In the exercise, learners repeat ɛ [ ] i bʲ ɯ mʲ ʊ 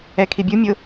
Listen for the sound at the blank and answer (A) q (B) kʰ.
B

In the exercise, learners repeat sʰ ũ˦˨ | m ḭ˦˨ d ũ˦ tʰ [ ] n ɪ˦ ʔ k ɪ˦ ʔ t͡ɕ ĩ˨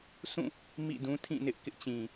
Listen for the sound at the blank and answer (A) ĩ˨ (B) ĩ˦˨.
B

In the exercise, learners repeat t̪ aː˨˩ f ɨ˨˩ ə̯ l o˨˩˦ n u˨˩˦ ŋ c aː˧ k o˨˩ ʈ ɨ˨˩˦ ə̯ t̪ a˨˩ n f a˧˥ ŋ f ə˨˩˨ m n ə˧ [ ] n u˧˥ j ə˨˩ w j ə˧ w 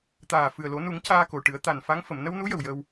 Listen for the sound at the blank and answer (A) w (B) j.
A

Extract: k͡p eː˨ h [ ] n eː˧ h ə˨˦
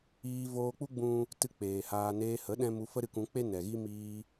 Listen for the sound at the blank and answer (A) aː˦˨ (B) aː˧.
B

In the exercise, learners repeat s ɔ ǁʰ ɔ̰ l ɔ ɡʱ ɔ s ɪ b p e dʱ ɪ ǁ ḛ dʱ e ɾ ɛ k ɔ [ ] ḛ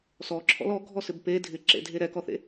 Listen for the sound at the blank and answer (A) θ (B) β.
A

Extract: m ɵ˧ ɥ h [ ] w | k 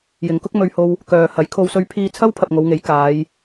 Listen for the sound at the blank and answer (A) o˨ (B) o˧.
B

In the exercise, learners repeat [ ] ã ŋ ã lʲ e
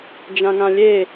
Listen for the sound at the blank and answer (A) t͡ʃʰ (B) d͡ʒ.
B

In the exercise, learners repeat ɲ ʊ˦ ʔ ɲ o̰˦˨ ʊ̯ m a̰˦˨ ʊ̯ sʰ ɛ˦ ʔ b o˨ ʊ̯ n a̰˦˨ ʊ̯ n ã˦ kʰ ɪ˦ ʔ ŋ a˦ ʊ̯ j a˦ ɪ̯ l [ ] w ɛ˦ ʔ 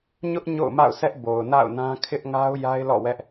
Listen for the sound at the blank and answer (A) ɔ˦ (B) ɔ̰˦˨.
B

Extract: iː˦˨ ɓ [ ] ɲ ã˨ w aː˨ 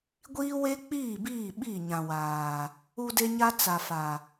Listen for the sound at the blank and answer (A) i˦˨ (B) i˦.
A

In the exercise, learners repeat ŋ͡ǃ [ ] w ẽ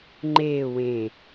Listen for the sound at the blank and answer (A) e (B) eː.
B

